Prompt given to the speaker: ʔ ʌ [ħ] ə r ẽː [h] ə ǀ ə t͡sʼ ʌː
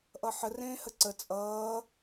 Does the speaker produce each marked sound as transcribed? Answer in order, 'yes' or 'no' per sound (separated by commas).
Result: yes, yes